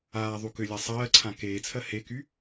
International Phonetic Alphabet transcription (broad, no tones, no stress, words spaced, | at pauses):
aː ðˤukʏlʲa sˤɜːǀʰã keːt͡sʰɜ heky